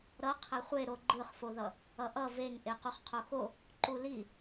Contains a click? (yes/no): yes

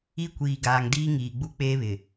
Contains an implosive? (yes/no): no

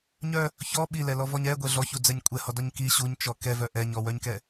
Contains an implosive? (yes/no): yes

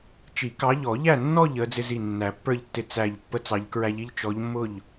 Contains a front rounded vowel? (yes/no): no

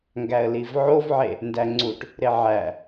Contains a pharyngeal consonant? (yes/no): yes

